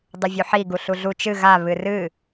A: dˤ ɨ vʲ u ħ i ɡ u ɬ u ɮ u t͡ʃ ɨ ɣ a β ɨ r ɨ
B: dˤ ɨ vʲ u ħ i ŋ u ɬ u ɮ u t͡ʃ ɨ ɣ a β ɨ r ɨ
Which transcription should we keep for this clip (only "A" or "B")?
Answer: A